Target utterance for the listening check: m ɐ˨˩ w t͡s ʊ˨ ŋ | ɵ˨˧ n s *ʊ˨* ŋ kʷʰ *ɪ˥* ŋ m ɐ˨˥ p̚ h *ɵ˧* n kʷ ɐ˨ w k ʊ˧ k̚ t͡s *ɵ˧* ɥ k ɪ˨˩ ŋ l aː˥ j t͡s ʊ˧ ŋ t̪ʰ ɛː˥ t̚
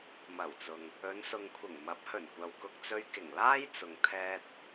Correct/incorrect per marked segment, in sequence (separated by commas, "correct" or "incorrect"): correct, incorrect, incorrect, correct